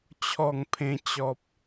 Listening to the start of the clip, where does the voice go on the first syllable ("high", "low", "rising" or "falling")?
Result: falling